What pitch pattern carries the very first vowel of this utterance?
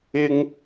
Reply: high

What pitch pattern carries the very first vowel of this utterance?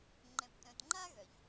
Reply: low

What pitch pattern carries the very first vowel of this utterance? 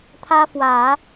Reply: high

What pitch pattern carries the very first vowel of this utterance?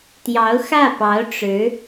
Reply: rising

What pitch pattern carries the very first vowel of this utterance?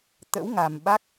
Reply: rising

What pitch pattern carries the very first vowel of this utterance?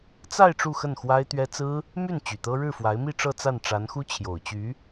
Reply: falling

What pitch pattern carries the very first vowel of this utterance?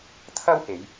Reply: high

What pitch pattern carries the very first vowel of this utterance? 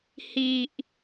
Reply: low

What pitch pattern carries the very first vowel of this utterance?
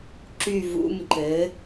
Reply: falling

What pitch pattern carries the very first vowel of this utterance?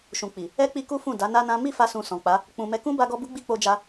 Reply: low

